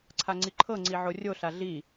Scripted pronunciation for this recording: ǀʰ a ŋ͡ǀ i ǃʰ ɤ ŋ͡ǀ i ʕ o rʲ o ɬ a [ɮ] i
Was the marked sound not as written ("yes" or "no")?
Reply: no